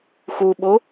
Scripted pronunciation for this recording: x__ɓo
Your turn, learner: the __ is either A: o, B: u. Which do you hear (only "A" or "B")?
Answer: B